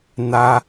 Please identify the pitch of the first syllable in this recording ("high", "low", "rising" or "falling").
high